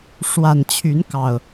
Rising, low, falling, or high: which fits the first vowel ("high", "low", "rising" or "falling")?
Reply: low